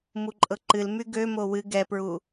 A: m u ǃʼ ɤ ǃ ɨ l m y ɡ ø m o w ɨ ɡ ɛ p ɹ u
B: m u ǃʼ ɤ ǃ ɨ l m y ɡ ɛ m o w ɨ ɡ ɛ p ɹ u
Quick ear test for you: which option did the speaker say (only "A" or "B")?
A